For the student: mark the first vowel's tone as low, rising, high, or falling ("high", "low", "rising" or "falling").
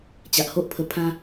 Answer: low